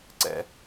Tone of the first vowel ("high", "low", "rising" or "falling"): high